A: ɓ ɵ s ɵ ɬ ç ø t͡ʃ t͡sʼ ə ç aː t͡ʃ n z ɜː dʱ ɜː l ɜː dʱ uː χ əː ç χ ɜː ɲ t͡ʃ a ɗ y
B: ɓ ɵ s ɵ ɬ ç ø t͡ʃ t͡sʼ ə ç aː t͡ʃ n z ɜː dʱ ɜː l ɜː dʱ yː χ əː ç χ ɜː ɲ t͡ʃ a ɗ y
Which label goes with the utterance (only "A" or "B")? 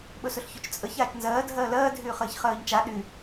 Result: B